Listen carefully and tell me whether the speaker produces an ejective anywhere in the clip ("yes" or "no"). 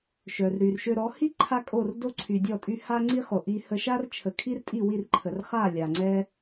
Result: yes